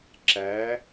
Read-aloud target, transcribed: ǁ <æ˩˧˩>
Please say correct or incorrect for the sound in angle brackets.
incorrect